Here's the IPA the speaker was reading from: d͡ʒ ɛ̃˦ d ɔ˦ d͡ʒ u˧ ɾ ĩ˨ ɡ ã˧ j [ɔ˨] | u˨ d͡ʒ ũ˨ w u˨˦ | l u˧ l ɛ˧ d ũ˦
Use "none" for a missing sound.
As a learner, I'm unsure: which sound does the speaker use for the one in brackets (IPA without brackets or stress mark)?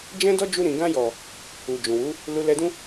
ɔ˨